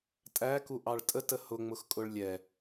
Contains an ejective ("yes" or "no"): yes